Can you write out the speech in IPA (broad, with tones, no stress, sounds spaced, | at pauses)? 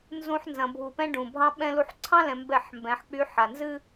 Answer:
n z ũ˨ ħ n z ɐ̃˨ bʱ u˨ p ɛ̃˦ ɖ ũ˨ bʱ ɑ̃˦ ɓ ɛ̃˦ l u˦ ħ ǀʰ ɑ̃˦ l ɛ̃˨ m b ɛ˦˨ ħ m b ɛ̃˨˦ ħ k͡p y˦ ħ a˨ n z ɨ˦